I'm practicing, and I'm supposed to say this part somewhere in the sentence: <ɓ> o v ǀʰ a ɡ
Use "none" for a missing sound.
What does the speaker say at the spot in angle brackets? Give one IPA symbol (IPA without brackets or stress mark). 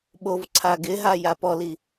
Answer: ɓ